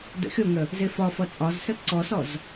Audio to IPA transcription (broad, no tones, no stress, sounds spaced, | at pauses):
d ə̰ xʲ o ŋ ə | z e f ɒ f ʌ t͡sʼ ɒ z s ə ǀ ɔ s ɔ z